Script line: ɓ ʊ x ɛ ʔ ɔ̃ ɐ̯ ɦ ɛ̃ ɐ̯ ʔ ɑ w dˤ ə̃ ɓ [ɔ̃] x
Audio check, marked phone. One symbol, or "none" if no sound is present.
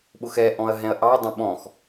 ɔ̃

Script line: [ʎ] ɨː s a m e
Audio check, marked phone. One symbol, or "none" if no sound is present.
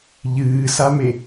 ʎ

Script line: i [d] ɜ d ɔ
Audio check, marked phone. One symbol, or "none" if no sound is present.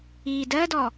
d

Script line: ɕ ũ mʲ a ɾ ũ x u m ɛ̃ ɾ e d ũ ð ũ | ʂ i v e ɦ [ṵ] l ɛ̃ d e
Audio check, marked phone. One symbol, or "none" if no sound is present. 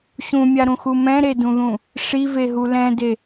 u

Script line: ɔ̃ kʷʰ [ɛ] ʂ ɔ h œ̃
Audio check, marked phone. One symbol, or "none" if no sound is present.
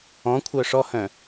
œ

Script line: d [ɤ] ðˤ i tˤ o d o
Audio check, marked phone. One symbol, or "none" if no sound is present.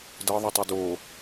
ɤ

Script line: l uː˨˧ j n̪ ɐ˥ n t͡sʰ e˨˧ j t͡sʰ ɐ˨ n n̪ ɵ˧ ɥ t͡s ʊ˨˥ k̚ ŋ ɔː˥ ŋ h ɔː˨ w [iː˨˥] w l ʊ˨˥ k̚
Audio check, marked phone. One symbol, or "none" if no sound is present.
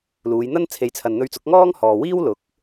iː˥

